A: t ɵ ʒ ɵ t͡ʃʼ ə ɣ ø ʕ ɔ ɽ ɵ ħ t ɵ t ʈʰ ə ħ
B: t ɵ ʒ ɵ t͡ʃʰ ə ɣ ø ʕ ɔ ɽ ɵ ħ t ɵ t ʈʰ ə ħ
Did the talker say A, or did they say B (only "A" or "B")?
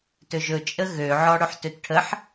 A